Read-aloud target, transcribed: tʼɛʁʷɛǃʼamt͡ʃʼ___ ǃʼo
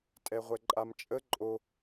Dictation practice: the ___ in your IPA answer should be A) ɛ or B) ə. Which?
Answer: B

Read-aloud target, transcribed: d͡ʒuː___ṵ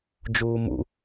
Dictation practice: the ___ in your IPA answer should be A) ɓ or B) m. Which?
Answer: B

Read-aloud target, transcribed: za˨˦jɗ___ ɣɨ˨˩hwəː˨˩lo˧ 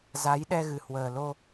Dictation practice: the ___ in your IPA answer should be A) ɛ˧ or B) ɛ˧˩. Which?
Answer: A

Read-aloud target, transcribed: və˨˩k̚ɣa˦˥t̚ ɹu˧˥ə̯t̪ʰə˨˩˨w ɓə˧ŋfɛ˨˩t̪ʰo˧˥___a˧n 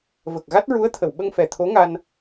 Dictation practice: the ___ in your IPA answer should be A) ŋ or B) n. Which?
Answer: A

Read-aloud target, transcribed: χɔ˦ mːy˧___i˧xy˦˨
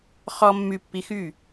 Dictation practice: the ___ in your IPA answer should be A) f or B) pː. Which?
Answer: B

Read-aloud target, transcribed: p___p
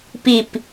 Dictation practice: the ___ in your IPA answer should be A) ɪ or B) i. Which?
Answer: B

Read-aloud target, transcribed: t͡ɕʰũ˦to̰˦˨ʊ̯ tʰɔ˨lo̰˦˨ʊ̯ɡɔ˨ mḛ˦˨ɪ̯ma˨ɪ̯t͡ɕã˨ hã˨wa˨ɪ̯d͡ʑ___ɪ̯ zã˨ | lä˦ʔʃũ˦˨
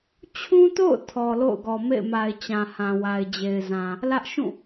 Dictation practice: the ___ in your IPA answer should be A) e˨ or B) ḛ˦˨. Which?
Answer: A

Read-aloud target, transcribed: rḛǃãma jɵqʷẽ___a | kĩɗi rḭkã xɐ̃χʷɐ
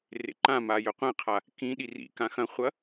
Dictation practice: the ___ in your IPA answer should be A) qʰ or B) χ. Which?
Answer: A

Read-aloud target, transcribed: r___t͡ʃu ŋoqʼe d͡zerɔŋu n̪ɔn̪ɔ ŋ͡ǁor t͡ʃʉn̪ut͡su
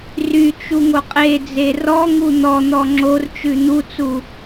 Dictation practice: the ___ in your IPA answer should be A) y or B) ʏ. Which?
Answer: A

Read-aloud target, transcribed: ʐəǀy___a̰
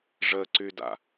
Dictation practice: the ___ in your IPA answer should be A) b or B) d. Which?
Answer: B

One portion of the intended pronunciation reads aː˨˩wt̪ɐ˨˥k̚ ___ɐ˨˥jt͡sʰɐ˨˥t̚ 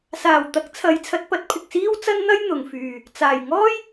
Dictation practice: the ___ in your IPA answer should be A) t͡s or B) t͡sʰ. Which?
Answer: B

